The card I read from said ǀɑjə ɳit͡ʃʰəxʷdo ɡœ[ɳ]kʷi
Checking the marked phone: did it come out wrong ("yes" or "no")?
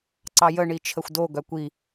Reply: yes